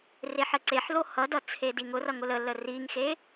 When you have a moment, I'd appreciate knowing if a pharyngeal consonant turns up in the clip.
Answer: yes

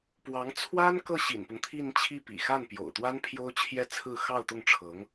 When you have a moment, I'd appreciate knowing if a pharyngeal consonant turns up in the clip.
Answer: no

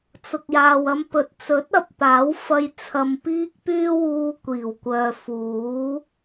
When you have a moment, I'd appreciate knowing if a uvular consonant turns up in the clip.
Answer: no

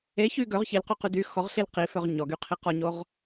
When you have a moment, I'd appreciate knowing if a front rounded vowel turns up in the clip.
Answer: yes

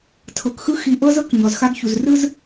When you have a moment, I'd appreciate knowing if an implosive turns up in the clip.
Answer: no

